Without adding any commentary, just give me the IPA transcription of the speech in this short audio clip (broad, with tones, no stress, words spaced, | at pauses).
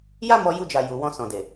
ja˦mɔ˧ju˧d͡ʒa˨ ju˨wɔ̃˧ sɔ̃˨de˨